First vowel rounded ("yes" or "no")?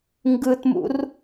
no